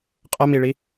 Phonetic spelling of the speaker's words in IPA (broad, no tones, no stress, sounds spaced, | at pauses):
qʼ ʌ m i ɭ i